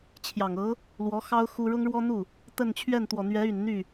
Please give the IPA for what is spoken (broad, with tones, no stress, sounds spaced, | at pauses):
t͡ɕʰ j ɑ˨˩ ŋ ɤ˧˥ | l w ɔ˧˥ x ɑ˥ ʊ̯ x u˥ ɻ ʊ˥ ŋ ɻ w ɔ˥ n̪ u˥˩ | t̪ ə˥˧ n t͡ɕʰ ɥ ɛ˥˩ n t̪ w ɔ˨˩ n̪ ɥ ɛ˧˥ y˨˩ n n̪ y˥˩